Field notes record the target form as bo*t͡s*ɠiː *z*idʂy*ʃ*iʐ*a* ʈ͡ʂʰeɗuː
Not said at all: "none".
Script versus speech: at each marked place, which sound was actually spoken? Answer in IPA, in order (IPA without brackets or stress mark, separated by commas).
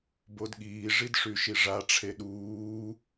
d, ʐ, ʃ, a